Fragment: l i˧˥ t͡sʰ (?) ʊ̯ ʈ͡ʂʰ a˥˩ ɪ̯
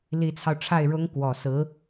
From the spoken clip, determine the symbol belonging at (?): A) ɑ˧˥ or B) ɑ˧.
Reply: B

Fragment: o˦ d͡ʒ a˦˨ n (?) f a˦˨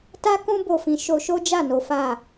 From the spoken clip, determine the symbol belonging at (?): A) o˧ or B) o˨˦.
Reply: B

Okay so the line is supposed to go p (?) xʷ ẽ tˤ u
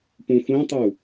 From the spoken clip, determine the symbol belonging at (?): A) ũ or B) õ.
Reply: A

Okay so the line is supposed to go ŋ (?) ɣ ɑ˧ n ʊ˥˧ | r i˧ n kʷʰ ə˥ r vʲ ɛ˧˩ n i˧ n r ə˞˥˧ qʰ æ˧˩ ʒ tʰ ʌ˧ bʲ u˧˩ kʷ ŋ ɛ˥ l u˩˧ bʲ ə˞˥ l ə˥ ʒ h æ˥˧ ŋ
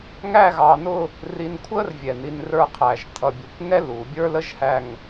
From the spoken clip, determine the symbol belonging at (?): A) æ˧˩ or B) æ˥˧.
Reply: B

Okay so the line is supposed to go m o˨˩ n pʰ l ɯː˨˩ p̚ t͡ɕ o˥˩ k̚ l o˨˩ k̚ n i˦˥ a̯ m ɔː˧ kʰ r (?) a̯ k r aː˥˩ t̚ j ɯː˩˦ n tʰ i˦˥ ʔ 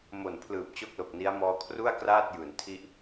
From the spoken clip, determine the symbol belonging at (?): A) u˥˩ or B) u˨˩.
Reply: A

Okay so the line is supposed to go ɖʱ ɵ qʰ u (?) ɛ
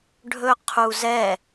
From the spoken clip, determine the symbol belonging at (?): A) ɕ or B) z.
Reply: B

